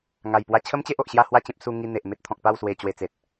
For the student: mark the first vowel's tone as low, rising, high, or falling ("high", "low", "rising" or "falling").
low